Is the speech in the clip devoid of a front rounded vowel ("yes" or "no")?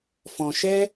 yes